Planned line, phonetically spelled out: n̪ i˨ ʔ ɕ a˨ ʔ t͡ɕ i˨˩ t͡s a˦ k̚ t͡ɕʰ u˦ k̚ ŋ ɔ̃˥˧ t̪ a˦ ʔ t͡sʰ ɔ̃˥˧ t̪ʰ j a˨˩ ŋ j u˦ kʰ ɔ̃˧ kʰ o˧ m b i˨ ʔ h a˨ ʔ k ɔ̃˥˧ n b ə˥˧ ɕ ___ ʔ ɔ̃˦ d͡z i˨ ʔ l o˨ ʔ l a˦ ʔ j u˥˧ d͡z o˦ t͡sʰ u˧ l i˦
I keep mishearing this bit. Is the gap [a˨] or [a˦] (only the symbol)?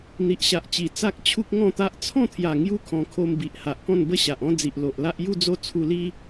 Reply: a˨